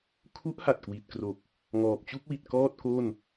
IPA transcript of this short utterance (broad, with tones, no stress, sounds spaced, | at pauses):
kʰ u˦˥ ʔ h a˨˩ t̚ k w i˨˩ t̚ k r o˨˩ k̚ | ŋ ɔː˨˩ p̚ t͡ɕ u˥˩ k̚ w i˨˩ t̚ k ɔː˥˩ t̚ k o˥˩ n